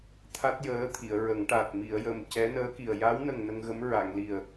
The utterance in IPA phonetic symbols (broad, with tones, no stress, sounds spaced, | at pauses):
t̪ʰ a˦˥ t̚ j əː˧˥ t̪ʰ i˨˩˨ ə̯ ɹ ə˨˩˦ ŋ ʈ a˨˩ t̚ m i˨˩˨ ə̯ j ə˨˩ m c ɛ˧˥ n əː˧˥ k i˨˩ ə̯ j a˧˥ w n ə˨˩ ŋ n ə˧ ŋ ɣ ə˧˥ m ɹ a˨˩˨ ŋ l i˨˩ ə̯